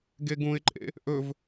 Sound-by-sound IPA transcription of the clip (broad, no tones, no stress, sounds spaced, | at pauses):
ɡ e ɡ ũ ɪ̯ ǃʼ ḛ | ʔ ɵ v